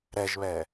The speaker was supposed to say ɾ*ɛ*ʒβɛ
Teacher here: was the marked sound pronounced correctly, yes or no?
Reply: yes